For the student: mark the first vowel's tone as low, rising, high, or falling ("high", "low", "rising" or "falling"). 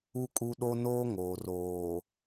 high